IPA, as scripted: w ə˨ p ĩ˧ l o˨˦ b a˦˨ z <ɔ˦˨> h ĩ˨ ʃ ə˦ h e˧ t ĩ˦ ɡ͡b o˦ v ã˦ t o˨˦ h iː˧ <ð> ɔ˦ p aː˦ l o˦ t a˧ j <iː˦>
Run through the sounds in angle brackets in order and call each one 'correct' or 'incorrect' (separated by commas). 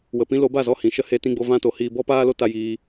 correct, incorrect, incorrect